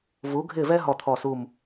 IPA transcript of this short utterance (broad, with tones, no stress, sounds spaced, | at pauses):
v u˨˦ ɡʱ ɪ˦˨ v ɛ˦ ɦ ɔ˦˨ t̪ʰ ɔ˦˨ s u˦˨ m